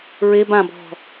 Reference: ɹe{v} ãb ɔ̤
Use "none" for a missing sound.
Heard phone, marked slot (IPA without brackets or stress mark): b